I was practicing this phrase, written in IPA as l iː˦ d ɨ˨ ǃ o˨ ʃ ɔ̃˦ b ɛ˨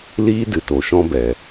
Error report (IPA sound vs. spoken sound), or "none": ǃ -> t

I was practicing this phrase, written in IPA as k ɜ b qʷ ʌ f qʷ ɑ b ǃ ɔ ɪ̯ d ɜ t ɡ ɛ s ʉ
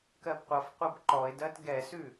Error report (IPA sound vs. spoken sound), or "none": ɑ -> ʌ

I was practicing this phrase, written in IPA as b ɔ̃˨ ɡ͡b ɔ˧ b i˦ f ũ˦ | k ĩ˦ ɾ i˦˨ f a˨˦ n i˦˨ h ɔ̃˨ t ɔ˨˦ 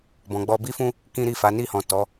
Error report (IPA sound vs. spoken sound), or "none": none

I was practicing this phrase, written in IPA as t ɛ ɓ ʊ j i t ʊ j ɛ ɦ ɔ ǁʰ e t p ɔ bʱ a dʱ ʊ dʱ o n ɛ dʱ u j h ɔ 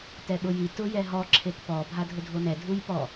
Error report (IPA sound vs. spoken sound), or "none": h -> p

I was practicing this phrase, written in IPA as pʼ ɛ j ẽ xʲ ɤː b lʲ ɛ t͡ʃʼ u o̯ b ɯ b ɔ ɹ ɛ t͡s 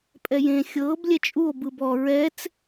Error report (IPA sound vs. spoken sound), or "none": none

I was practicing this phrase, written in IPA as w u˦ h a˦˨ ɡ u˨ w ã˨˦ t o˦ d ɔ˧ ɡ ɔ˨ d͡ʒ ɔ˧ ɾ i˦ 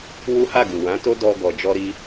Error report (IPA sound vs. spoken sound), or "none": none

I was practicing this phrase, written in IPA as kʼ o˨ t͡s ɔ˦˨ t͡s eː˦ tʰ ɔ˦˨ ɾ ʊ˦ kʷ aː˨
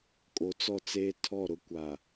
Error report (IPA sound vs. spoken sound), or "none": none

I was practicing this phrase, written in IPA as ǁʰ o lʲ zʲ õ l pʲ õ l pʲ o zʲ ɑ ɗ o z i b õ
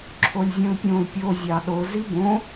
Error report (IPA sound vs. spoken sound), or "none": none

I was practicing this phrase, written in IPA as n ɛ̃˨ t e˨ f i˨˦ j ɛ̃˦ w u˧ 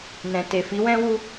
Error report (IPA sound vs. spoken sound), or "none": j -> w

